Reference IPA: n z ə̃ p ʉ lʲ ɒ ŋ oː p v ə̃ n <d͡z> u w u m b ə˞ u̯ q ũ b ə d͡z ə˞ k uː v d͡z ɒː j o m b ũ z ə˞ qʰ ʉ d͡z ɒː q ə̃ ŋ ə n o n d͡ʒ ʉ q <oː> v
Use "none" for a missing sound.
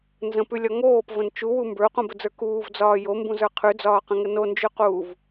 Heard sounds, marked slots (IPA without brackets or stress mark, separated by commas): t͡ʃ, uː